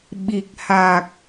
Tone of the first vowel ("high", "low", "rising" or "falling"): low